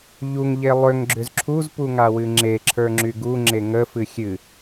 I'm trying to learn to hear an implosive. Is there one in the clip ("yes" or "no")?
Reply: no